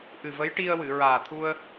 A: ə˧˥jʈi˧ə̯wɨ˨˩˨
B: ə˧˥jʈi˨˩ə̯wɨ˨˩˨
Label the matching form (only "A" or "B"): A